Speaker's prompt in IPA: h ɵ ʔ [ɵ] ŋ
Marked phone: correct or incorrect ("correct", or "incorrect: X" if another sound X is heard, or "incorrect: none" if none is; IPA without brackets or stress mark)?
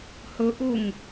incorrect: ʊ